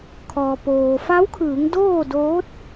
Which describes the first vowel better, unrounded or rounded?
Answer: rounded